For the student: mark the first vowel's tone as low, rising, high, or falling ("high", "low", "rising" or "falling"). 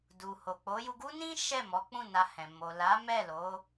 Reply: low